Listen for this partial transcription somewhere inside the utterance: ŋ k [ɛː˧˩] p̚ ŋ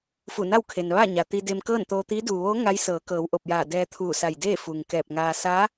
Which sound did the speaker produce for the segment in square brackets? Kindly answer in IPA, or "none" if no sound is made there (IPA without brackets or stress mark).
ɛː˧˩